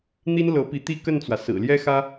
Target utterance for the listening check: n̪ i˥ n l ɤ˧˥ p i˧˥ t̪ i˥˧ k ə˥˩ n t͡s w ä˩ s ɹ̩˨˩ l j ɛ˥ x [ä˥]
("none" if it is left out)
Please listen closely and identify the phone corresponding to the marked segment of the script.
ä˥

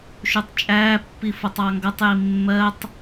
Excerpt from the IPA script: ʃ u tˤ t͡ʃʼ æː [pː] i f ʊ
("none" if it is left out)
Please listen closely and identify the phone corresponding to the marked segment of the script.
pː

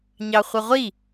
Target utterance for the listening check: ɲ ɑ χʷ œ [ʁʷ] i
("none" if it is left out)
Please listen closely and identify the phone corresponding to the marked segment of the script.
ʁʷ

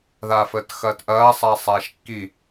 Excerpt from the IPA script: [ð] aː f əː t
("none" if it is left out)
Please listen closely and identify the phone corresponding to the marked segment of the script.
ð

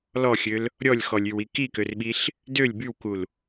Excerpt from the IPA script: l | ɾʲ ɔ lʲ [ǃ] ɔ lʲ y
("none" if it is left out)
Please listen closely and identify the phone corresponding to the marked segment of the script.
x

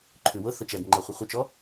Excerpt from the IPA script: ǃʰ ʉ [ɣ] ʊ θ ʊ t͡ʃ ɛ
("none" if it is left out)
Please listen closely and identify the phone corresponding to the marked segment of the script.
w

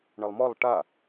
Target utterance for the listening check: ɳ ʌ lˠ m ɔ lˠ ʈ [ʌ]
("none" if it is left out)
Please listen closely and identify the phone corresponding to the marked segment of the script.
a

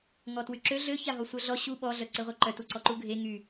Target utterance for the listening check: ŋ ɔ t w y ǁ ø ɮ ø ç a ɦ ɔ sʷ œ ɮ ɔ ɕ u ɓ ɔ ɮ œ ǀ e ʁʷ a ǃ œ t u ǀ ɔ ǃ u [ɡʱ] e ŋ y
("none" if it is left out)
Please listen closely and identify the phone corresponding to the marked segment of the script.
ɡʱ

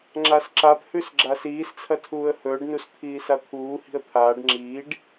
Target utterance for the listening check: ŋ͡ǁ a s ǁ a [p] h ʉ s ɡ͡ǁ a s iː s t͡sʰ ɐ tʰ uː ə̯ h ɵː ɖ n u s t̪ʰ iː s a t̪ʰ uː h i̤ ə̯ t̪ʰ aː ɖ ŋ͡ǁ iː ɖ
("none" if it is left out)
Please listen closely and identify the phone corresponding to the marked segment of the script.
p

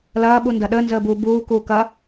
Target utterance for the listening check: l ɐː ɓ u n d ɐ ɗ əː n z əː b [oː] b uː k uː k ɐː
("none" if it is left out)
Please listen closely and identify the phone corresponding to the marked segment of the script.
uː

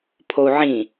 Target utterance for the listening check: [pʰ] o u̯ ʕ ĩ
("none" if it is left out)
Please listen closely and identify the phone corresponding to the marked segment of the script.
pʰ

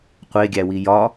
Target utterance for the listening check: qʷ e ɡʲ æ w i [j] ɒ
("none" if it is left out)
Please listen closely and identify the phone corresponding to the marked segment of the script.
j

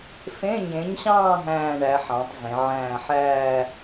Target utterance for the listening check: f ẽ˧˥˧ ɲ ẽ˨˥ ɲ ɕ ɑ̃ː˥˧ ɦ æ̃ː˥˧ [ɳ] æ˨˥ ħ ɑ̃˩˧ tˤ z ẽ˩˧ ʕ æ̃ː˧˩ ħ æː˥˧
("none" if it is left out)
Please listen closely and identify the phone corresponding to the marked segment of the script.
ɳ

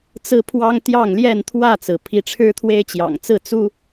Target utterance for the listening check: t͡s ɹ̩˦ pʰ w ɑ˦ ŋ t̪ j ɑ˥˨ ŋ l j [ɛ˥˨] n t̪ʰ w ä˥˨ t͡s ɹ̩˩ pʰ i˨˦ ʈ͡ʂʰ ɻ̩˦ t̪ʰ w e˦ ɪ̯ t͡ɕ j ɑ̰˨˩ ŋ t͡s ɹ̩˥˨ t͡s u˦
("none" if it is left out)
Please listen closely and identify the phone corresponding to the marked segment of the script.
ɛ˥˨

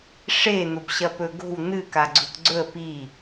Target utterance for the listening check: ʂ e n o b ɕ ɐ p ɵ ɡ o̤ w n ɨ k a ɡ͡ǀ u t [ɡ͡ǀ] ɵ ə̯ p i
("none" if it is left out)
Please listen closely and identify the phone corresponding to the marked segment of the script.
ɡ͡ǀ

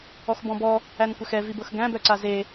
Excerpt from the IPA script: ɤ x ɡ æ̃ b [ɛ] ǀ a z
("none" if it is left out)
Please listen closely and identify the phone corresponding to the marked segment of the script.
œ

